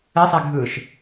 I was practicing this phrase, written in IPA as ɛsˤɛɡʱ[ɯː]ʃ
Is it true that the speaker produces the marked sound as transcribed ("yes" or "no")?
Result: yes